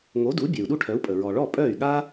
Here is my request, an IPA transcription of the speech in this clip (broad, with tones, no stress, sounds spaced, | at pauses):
ŋ o˩˥ d u˩˥ bʲ e˩ u̯ ɗ u˥˩ ʈʰ œ˩˥ u̯ pʼ ə˩ ɹ ɔ˩ ɭ ɔ˥˩ pʼ œː˥˩ y̯ ɠ a˥